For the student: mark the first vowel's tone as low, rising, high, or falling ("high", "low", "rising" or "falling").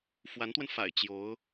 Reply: rising